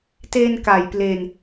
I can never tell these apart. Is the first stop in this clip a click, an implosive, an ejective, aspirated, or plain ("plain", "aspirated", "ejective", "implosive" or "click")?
plain